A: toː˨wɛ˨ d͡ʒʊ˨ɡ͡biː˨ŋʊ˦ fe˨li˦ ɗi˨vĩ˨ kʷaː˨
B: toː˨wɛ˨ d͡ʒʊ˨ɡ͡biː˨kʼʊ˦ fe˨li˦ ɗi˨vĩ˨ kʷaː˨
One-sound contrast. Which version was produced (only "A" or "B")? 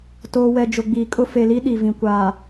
B